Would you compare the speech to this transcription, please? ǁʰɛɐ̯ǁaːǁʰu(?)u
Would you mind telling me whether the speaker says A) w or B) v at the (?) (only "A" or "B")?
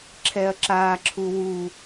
A